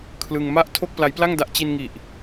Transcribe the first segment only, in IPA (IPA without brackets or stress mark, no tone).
kʰ